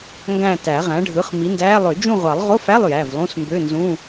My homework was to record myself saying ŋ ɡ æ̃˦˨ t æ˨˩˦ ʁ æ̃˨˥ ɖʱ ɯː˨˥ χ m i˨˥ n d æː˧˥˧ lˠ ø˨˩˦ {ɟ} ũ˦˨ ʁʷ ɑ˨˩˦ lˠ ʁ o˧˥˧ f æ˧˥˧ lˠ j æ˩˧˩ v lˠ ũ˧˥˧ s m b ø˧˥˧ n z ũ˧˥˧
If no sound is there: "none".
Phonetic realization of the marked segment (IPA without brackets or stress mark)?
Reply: d͡ʒ